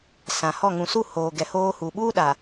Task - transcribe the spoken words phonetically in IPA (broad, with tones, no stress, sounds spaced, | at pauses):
s ã˨ h ɔ˦˨ ŋ ũ˨ s u˦˨ h oː˨ ɡ ɛ˨ h oː˦ h u˨ ɓ uː˦ ɗ a˨